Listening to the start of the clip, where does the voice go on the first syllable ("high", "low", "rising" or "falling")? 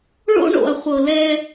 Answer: high